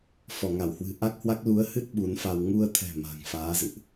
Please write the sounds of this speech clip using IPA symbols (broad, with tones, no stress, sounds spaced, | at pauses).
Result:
f ɔ˧˩ ŋ a˧˩ w h w ɨ̤˨˩ ʔ a˦˥ k̚ h w a˦˥ k̚ l u˨˦ ə̯ h ɨ˦˥ t̚ ɓ u˨˦ n f a˧ w ŋ u˧ ə̯ t̪ʰ ɛ̤˨˩ m a̤˨˩ ŋ f aː˨˦ z ɨ̰˧˨ ʔ